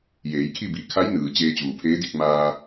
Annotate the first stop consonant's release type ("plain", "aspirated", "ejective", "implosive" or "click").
aspirated